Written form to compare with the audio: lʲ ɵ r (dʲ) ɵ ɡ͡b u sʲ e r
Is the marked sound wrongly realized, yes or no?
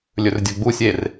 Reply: no